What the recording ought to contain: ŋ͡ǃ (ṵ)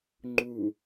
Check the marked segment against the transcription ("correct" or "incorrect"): incorrect